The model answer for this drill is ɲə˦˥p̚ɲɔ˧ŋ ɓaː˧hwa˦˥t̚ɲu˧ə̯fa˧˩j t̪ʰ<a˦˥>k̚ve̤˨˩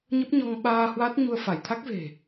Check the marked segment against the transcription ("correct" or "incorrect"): correct